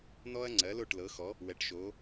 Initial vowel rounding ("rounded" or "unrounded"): rounded